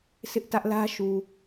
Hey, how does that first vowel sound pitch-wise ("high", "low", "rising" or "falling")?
high